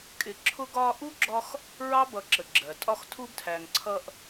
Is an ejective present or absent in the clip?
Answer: present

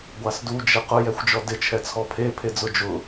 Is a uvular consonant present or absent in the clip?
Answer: present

